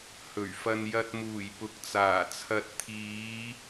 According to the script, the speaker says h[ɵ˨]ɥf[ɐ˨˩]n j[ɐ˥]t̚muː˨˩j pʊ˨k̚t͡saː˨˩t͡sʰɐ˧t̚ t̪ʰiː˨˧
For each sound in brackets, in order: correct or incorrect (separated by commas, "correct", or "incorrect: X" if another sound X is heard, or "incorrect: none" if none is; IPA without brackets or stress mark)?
incorrect: ɵ˨˩, incorrect: ɐ˧, incorrect: ɐ˧